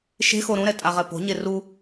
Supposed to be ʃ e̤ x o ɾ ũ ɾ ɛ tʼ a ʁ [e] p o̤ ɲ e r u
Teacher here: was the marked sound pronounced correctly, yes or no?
no